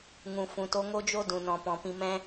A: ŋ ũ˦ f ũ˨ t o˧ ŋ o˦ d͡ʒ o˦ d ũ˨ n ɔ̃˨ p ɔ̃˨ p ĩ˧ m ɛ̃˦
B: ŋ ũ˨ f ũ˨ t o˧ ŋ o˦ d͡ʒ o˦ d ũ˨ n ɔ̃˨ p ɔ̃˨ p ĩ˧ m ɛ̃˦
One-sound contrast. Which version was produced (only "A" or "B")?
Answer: B